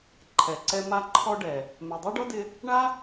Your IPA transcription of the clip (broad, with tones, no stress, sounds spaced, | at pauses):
ǃʰ ɛ˨ ǀ ɛ˧ m a˦ ǃʰ ɔ˦ ɖ ɛ˨ | m ɛ˨ dˤ o˦ ɖ ɔ˦ d ɪ˧ | ɳ a˦